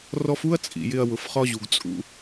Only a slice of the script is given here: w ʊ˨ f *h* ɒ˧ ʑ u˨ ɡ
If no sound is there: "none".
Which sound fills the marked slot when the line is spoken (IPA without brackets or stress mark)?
χ